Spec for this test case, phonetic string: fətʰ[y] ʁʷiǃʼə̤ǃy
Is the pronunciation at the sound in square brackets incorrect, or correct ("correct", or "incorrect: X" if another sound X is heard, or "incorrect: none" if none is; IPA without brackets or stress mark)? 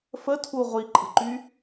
incorrect: u